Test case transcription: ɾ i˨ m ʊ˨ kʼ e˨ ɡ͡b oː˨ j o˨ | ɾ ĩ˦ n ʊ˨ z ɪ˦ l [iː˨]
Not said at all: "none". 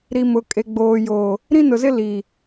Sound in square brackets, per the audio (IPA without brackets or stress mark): i˨